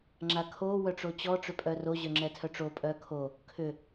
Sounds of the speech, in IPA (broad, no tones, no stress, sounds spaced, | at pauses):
ŋ͡ǁ a kʰ o w œ ʈ͡ʂ o t͡ɕ ɔ ʈ͡ʂ ʏ pʼ œ r o ʑ œ ŋ͡ǁ ɛ tʰ œ ʈ͡ʂ o pʼ œ kʰ o | kʰ ʏ